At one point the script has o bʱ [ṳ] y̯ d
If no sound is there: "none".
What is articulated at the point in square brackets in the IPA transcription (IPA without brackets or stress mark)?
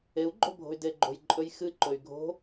o̤